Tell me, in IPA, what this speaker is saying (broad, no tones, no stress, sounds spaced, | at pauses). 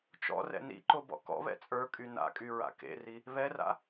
t͡ʃ ɔ̰ r ɛ̰ n ḭ ǃ o b ɔ̰ k ɔ̰ β ɛ̰ t͡sʼ ə˞ kʼ y n a̰ kʼ y ɹ a̰ k ḛ r i | β ɛ r a̰